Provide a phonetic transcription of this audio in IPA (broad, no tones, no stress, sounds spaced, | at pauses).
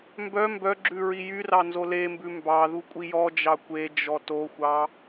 m b œ m b œ ɡ͡ǁ ʉ ɹ i j y r ɑ n z o l e m b ʉ m b ɑ ð u kʷʼ i j ɔ d͡ʒ ɑ kʷ e d͡ʒ ɔ t o xʷ ɑ